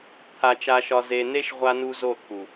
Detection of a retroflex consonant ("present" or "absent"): absent